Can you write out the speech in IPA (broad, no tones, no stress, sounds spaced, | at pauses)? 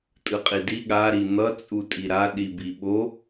tʼ ɯ qʼ i d i ɠ a ɾ i n̪ ʌ t͡sʼ u tʼ i ɾ a ɗ i b i ɓ o